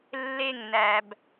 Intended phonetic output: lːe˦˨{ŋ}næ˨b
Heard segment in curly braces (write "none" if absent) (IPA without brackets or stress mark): ŋ